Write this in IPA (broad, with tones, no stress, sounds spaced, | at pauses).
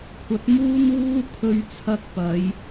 kʷʰ ɐ˨˥ t̚ m uː˥ n w uː˥ kʰ ɵ˧ ɥ t͡sʰ ɐ˧ k̚ p ɐ˨˧ j